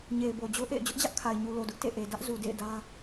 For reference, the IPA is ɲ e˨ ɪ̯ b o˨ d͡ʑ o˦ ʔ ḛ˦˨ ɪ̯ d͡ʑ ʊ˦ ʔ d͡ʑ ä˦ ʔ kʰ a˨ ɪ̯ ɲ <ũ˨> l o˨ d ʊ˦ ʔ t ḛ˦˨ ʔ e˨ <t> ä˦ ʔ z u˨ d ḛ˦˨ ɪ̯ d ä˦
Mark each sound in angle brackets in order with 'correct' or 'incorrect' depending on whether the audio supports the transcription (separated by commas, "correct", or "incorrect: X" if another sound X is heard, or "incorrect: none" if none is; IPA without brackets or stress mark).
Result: incorrect: u˨, incorrect: d